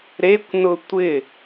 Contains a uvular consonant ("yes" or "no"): no